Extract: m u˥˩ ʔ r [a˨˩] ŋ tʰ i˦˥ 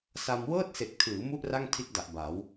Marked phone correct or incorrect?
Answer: incorrect